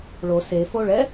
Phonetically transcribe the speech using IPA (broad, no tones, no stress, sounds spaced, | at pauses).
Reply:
ɭ o s e f o ɭ ɛ